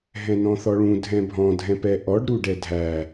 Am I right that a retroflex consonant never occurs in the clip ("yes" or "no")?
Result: no